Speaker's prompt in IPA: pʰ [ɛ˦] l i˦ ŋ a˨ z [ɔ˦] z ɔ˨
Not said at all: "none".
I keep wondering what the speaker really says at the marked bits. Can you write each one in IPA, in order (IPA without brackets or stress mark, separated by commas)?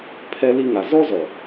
ɛ˦, ɔ˦